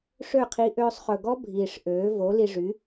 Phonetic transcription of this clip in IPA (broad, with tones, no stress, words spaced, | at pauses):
ʂø˥˩qʰi˧ ʔøː˧sˤχɵ˨˩ɡɔ˦˥ bʱiː˨˩ʂʔøː˩˥ vo˩˥li˧ʐy˩˥